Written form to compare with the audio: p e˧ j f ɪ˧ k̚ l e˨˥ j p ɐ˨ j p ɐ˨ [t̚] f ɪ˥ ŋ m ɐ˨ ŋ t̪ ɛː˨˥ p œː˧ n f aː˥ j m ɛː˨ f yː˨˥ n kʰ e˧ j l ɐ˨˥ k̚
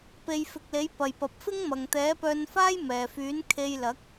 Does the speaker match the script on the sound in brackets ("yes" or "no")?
no